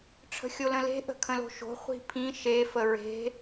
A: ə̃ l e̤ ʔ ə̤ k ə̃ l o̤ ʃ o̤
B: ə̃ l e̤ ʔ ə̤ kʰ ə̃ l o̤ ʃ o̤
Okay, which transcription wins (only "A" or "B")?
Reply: B